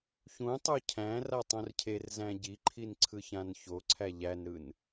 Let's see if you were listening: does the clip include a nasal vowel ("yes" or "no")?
yes